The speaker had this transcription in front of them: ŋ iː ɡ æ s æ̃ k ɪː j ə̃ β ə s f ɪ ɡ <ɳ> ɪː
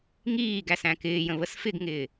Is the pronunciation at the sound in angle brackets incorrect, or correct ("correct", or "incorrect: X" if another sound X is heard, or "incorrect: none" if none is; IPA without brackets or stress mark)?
incorrect: ŋ